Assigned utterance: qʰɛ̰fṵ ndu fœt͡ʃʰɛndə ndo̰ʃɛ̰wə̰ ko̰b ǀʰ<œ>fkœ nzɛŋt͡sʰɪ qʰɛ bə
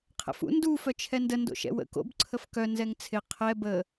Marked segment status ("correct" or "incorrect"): incorrect